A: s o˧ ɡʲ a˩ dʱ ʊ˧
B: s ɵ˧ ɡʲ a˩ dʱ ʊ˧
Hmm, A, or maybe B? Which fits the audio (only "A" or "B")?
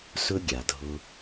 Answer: B